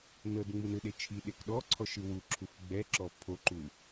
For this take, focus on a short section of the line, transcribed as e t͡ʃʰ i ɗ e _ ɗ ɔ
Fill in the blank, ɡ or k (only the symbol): k